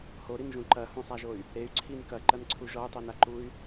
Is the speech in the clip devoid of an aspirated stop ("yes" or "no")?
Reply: no